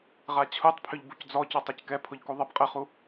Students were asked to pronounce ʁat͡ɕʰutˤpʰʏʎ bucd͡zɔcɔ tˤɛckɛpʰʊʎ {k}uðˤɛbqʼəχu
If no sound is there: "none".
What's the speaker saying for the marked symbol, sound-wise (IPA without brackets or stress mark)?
k